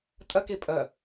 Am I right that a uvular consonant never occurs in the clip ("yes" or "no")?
yes